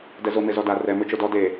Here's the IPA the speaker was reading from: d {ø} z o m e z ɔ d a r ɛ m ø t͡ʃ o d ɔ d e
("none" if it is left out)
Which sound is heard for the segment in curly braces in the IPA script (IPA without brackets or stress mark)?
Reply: ɛ